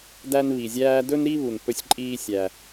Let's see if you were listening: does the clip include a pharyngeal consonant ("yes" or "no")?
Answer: no